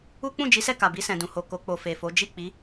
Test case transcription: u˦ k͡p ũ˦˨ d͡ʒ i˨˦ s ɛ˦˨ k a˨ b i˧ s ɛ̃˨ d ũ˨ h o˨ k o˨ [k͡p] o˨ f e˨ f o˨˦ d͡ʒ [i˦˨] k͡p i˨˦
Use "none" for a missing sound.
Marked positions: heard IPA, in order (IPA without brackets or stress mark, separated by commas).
k͡p, i˦˨